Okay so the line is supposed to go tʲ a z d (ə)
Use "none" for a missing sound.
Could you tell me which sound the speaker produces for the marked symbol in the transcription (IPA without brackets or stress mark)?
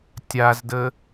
ə